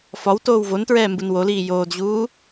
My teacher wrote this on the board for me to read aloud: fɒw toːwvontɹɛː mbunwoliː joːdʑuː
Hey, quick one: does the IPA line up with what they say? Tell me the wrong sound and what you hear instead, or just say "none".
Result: none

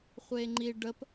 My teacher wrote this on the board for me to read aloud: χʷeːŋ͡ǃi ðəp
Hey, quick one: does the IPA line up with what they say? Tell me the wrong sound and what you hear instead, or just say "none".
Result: ð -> ɖ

